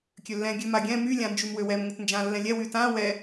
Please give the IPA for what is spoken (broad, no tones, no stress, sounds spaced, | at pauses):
kʲ ø lː ɛ̃ ɡʲ ø m a ɡʲ ɛ̃ m y lʲ ã n d͡ʒ y m w ø w ɛ m ŋ ʊ t n d͡ʒ ã lː ɛ̃ lʲ ɛ w y t ã w ɛ